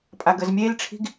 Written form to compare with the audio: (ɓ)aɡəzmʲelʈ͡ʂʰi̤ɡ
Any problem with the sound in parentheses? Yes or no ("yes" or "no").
yes